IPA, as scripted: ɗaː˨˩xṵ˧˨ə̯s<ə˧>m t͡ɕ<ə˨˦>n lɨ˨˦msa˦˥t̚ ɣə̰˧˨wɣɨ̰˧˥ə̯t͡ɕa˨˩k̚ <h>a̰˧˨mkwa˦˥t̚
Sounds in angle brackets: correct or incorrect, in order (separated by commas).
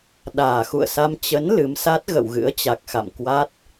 incorrect, correct, incorrect